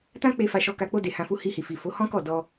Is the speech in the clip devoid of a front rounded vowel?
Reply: yes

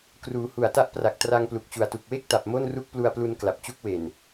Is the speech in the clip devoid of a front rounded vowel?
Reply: yes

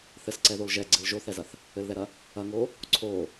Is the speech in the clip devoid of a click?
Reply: no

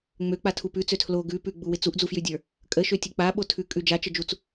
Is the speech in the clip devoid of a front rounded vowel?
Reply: no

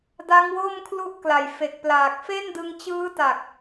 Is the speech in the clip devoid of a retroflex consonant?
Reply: yes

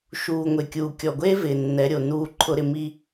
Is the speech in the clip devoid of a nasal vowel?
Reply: yes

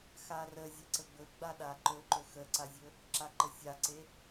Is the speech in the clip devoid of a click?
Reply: no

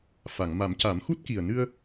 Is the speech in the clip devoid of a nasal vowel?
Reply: yes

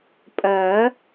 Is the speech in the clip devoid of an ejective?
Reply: no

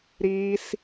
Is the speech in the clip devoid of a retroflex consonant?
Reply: yes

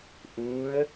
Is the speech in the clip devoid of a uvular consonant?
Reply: yes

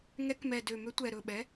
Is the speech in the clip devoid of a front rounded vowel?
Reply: no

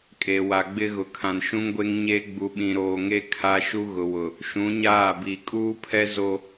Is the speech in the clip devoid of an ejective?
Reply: no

